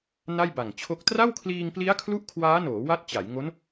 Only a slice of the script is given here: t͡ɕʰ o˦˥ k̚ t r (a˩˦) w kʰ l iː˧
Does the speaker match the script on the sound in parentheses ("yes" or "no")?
no